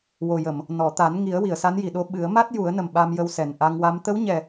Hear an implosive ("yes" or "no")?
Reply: yes